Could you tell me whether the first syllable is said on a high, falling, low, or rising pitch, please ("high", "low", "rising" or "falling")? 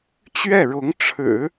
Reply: falling